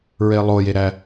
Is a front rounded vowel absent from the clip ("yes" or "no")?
yes